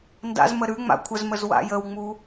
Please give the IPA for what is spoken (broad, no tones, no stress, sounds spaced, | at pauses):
n d a̰ z m ə ɾ ʉ ŋ͡m a̰ kʷʰ ə z m ə z w a̰ j ə w ŋ͡m u